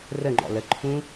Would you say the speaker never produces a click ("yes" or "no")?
no